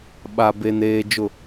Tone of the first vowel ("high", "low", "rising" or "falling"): low